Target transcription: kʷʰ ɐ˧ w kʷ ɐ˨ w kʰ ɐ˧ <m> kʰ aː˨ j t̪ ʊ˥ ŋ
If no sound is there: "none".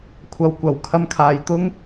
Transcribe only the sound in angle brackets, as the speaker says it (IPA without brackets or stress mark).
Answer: m